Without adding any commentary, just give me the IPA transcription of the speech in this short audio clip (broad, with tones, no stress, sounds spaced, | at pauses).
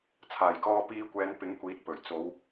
t͡sʰ aː˨˩ j k ɔː˧ p iː˧ kʷ ɛː˨˧ n p ɪ˨˥ ŋ kʷ iː˨˥ t̚ p ɵ˨˩ ɥ t͡s o˨˧ w